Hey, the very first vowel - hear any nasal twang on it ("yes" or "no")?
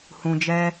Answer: yes